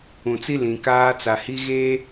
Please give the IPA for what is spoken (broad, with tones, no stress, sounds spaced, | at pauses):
ũ˨ t͡s i˦ l ĩ˨ k aː˦ t͡s a˨ h i˦ ɣ eː˦